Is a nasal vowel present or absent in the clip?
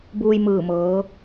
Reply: absent